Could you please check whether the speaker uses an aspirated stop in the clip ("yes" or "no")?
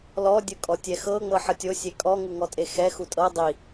no